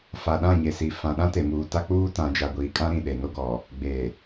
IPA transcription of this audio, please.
f a˨ ɗ ã˦˨ ɲ e˨ s i˨ f ã˨ ɗ ã˦ t e˨ m uː˨ t a˦ k͡p uː˦ t ã˨ d͡ʒ a˨ ɡʷ iː˨ kʼ ã˦ ɾ ĩ˨ ɗ e˨ n o˦ ɡ ɔ˨ | ɡ͡b e˨

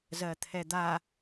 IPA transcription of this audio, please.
z ɜ t̪ʰ ɛ d̪ a

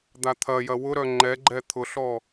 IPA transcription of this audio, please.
d̪ a t̪ʰ ɐ j ɐ w ʊ ɾ œ ŋ͡ǃ ɛ ɡ͡ǃ ɛ t̪ʰ ʊ ɬ ɔ

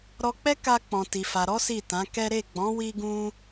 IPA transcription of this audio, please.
ɾ ɔ˧ k͡p ɛ˦ k a˧ k͡p ɔ̃˨ t i˨ f a˨ ɾ ɔ˨˦ s i˦˨ t ã˨˦ k ɛ˦ ɾ e˦˨ ɡ͡b ɔ̃˨˦ w i˧ ɡ ũ˧

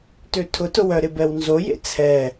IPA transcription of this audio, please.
t ø tʰ ʊ t ʊ w œ ɾ ɪ b ɛ w n z o j ḛ t͡sʰ ɛ

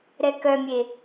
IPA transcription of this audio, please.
ɾ ɛ k œ mʲ e

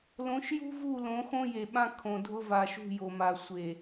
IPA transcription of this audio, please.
l õ˨˦ ʃ j ṳ˦ v u˦˨ l õ˨˦ x õ˦ j e˨ ɓ ã˦ kʰ õ˨ dʱ ʊ˦ v a˨ ʃ ṳ˦˨ j o˨ m a˨ sʷ e˨

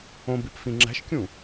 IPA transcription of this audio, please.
õ b i p f ĩ ŋ͡ǁ æ̤ ʃ kʲ ũ

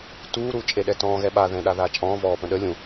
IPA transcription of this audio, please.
t uː ɾ uː t͡ʃʼ e ɗ ɛ t ɔ̃ː ɣ ɛ ɓ a ð ɛ̃ ɗ a ð aː t͡ʃʼ ɔ̃ː v ɔː p ə̃ ɗ ə lʲ ũ

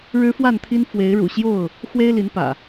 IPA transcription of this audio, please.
ɻ ɻ̩˦ f w a˥˨ n t̪ʰ i˦ n f w e˨˦ ɪ̯ ɻ ṵ˨˩ ɕ j o˥˨ ʊ̯ | x w e˦ ɪ̯ l i˨˦ n p ä̰˨˩

